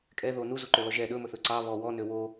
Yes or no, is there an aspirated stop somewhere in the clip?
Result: no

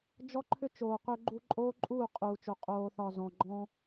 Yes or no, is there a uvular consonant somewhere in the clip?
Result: yes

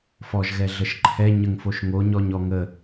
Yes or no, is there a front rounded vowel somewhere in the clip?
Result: no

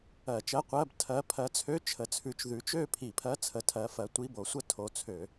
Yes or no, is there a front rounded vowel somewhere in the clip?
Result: yes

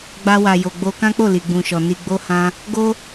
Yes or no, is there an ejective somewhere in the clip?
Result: no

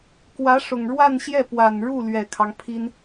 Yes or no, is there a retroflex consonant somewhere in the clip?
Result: yes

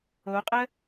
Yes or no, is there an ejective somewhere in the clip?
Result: yes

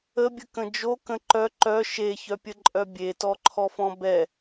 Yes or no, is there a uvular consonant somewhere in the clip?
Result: no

